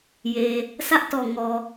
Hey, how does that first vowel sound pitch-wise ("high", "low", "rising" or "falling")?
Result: low